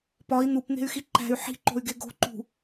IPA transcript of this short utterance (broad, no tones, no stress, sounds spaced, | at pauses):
p ɒ i̯ n̪ u p n̪ e̤ y̯ x i ǃ æ̤ y̯ ħ i̤ ǃ o̤ y̯ ɡ e ɡ o̤ ǃ ṳ